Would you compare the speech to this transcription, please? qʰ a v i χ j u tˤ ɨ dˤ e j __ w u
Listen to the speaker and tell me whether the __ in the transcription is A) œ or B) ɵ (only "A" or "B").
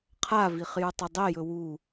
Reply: B